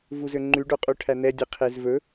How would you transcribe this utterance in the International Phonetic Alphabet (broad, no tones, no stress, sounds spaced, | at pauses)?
v u z ø ŋ͡ǃ ʉ ɖ o qʼ u ʈʰ æ n̪ ɛ dʲ e qʰ e z v ɵ